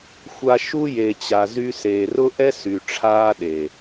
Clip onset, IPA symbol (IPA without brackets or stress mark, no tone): xʷ